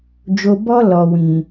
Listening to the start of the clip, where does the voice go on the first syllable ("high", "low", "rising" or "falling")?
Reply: low